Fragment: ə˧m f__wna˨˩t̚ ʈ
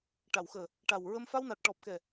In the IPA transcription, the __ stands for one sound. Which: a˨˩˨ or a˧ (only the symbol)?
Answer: a˧